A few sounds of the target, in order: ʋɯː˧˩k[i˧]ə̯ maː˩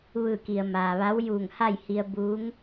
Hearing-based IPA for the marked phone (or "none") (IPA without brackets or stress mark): i˩